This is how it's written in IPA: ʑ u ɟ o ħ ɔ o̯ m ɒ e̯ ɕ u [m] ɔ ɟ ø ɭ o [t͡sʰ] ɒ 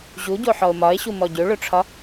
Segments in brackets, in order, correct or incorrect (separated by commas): correct, incorrect